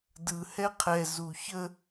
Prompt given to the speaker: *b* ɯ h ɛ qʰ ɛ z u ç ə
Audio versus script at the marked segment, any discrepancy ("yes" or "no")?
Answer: yes